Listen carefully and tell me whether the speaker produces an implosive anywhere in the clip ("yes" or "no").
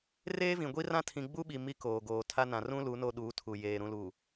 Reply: yes